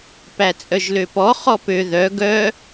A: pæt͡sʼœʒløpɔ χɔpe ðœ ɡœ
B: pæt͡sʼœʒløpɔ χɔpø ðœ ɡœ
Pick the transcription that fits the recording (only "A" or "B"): B